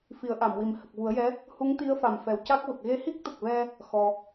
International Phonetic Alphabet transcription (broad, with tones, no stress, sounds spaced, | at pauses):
f i˨˩˦ ə̯ ʔ a˨˩˨ m w i˨˩ m h ə˨˩ k̚ v u˨˩˦ ə̯ j ɛ˧˥ | h u˧˥ ŋ t̪ i˧˥ ə̯ f a˨˩ m f ɛ˨˩ w c a˦˥ k̚ v ə˨˩ k̚ ɣ e˧ h i˦˥ k̚ t̪ ə˨˩ k̚ v ɛ˧ | x ɔ˧